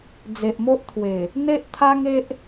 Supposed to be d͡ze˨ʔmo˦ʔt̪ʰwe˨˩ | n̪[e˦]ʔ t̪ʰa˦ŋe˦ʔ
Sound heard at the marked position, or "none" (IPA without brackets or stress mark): e˦